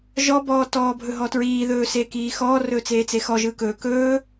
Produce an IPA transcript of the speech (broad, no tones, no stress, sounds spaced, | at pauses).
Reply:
ʒ ɔ b ɔː t ɔː bʱ ɵ ɦ ɔ t ɹ iː ð ɵː s eː k iː x ɔː r ɵː t͡s eː t͡s e x ɔ ʒ ɯː k ɵː k ɵː